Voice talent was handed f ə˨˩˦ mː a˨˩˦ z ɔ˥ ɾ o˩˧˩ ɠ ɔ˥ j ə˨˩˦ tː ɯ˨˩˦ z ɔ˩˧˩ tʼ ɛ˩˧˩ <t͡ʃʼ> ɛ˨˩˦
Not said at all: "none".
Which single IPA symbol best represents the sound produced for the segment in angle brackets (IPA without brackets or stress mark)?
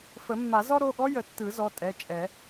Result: t͡ʃʼ